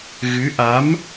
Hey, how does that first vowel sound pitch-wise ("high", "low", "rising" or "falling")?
rising